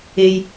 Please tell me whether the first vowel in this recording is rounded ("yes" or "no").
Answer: no